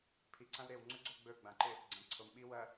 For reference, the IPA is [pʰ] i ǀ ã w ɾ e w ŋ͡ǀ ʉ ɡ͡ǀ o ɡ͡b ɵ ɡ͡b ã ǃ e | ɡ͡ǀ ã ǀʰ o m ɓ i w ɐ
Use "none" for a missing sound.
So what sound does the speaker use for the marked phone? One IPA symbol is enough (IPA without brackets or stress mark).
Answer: pʰ